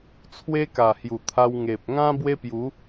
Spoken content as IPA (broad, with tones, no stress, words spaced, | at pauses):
t͡sʰwe˧ ka˨˩hju˨˩ t̪ʰa˧w ŋe˨p̚ŋã˦ bwe˦pju˨˦